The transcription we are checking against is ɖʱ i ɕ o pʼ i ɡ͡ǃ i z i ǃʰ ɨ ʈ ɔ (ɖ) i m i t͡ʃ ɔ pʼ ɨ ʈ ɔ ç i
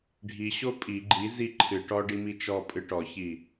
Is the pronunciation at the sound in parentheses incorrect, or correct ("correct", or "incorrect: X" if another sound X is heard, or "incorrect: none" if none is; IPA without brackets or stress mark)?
correct